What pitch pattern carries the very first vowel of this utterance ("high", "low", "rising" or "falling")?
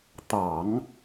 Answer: low